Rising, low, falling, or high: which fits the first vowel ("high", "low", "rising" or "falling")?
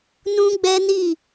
high